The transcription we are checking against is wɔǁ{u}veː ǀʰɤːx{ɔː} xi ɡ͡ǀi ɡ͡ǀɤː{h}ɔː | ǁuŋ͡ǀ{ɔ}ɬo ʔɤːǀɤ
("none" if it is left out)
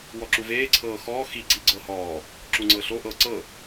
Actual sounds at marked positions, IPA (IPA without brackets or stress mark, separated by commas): u, ɔː, h, ɤ